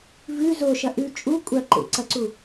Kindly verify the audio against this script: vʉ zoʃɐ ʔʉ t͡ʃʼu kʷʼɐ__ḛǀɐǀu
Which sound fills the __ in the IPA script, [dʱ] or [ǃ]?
ǃ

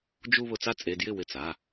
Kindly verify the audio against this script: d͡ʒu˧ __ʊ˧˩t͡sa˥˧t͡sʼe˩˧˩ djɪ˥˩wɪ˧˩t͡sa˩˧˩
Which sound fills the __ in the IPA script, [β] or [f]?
β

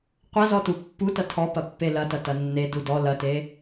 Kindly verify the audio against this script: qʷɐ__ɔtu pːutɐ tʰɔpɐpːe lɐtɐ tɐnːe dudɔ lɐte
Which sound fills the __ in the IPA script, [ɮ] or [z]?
z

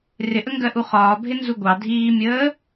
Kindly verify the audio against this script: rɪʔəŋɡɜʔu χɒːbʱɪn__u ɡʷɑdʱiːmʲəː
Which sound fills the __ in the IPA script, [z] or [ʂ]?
z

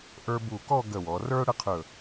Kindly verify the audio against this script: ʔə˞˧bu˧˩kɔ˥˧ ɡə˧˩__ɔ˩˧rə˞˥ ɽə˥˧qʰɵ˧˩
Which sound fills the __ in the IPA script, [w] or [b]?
w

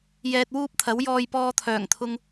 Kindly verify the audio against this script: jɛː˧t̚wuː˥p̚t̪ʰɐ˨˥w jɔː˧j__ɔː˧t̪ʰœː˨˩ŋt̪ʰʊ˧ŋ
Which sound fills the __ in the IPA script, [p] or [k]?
p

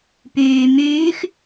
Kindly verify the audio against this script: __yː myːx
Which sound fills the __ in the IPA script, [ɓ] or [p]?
p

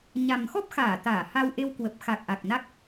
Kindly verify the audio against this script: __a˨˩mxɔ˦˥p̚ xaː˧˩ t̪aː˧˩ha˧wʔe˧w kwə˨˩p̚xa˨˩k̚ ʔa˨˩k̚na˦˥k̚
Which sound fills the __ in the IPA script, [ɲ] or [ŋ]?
ɲ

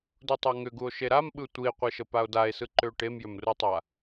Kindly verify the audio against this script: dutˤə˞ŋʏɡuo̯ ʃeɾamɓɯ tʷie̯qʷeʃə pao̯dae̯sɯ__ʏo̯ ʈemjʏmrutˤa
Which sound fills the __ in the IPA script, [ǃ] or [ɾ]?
ǃ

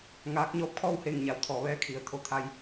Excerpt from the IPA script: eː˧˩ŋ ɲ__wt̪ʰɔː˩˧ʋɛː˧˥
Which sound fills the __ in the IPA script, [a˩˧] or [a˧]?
a˩˧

